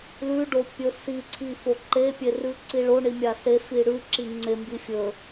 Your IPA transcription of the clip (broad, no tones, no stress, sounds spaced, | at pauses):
l ʉ ɖ o pʲ ɵ s i ǀʰ i f o ǃ e pʲ e r ʉ ǀ i ɭ o ɳ i mʲ a s e f i ɽ ʉ ǁ i ŋ͡ǀ e m b i fʲ ɵ